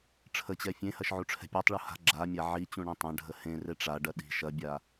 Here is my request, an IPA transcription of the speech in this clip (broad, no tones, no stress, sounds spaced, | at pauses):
ʈ͡ʂʰ ə t͡ɕ ɛ fʲ ẽ h ɐ ʃ ʕ u ʈ͡ʂʰ ɛ̤ pʲ e tˤ ɭ u h a̤ ɡ͡ǁ a mʲ a ʕ i t͡ɕ ũ ɳ ẽ tˤ ɐ̃ ɖʱ ə h ẽ r e ʈ͡ʂ a ɖ ɐ ɗ i̤ ʃ ɐ bʲ a